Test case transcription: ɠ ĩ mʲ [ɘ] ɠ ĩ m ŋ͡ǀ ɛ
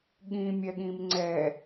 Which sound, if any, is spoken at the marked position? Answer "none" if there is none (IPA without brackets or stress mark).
ɛ